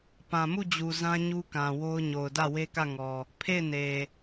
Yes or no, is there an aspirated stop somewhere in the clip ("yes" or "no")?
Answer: yes